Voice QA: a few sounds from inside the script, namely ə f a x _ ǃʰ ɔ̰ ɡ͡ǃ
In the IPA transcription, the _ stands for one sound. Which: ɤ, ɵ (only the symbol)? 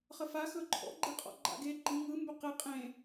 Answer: ɵ